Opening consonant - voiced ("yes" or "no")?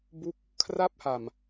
yes